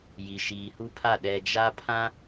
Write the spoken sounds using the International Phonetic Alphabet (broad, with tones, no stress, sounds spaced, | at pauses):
j i˨ ʃ iː˨ h u˦ pʰ a˦˨ ɗ ɛ˨ d͡ʒ a˦ pʰ ã˦